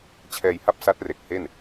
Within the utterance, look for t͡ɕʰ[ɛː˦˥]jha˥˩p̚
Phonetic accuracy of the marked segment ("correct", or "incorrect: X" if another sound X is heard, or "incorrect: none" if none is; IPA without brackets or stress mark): incorrect: ɛː˧